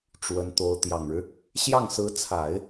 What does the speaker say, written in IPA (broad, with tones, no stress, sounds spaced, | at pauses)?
ʈ͡ʂ w ə˧˥ n t̪ o˧˥ ʊ̯ t̪ j ɑ˨˩ ŋ ɻ ɻ̩˦ | ɕ j ɑ˥˩ ŋ s ɹ̩˧˥ t͡sʰ a˨˩˦ ɪ̯